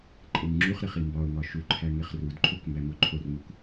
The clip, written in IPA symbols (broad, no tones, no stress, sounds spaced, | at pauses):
ǃʼ e ŋ ŋ͡ǁ u χ ɾ e χ i m b ɒ ʊ̯ ŋ ɒ ʃ u ǃʰ æ ŋ e χ r u d ǃʰ o k m b æ m o ǃʰ o r m u k